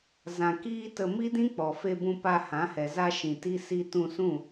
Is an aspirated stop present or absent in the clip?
absent